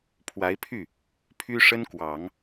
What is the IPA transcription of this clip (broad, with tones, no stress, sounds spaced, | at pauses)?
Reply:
pʰ w a˧˥ ɪ̯ pʰ y˥˩ | pʰ y˥ ʂ ə˥ n k w ɑ˨˩˦ ŋ